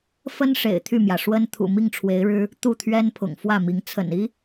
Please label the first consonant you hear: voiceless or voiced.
voiceless